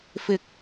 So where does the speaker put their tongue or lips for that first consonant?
lips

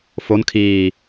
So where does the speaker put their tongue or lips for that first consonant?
lips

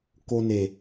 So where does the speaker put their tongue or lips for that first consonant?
velum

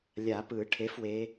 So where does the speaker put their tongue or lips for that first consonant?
tongue tip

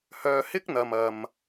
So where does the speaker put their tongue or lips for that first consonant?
throat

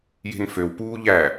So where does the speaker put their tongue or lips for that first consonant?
palate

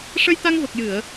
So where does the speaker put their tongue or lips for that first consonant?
retroflex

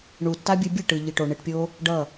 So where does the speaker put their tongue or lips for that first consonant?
retroflex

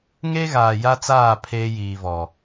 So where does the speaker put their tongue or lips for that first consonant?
velum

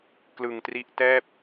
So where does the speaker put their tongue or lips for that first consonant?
velum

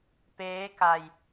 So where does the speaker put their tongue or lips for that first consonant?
lips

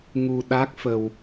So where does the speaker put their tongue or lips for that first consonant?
velum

